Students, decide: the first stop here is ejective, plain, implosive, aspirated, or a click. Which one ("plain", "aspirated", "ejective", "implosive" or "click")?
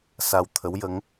aspirated